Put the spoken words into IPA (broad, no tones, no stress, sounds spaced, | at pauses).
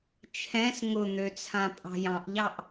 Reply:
t͡ʃʰ ɛ̃ s ŋ ʊ n̪ ø t͡sʰ ã pʼ ɑ̤ j ɑ̃ ʔ ʎ ɑ ʔ